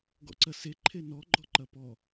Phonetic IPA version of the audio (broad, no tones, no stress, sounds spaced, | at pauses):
ɡ ɔ̰ ǀ ɐ s e ǃʰ e n ɔ ɡ͡ǃ ɔ ǃ ɐ p ɔ